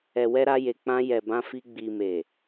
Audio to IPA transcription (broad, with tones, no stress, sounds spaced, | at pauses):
ɛ˨ w ɛ˧ ɾ a˧ j e˨ k͡p ã˧ j ɛ˨ b ã˧ f i˧ ɡ͡b i˨ m e˨